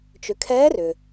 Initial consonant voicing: voiceless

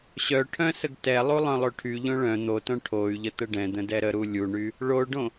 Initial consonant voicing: voiceless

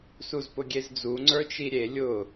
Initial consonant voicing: voiceless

